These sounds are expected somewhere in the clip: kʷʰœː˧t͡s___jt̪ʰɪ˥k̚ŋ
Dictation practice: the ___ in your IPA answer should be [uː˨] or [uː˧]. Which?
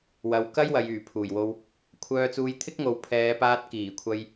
uː˧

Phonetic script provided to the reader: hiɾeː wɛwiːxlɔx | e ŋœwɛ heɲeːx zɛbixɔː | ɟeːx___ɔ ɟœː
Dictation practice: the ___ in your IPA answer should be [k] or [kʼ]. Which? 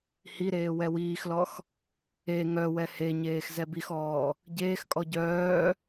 kʼ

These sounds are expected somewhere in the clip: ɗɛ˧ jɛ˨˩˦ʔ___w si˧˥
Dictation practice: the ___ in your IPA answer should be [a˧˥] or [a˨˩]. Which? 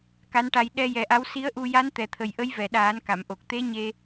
a˧˥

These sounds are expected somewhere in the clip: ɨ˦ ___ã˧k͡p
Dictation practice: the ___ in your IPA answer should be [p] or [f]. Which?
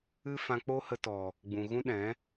f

